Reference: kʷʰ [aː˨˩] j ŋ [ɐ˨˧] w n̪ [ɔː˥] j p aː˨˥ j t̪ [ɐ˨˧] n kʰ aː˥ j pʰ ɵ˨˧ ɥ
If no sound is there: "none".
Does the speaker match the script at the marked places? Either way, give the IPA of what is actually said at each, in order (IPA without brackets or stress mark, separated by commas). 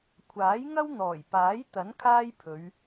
aː˨˥, ɐ˥, ɔː˨˩, ɐ˨˥